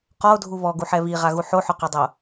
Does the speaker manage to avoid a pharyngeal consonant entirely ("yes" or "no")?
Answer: no